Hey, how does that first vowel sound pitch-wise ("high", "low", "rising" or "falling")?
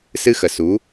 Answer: high